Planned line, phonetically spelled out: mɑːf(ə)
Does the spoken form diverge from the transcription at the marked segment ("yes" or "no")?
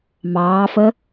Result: no